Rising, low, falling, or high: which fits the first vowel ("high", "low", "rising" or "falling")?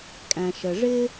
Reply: low